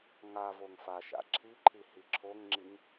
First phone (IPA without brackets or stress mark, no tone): ŋ